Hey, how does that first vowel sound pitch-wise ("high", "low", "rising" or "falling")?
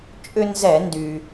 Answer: high